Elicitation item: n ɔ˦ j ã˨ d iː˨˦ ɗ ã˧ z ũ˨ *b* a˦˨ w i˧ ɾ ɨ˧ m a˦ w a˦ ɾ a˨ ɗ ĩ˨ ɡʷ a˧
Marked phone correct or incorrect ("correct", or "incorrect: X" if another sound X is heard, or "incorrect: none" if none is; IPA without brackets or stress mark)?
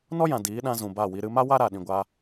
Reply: correct